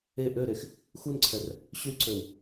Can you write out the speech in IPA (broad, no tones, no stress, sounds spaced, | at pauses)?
e ʔ ø ɾ e x | x u n ǀʰ ɛ r | ɕ y ǀ ø w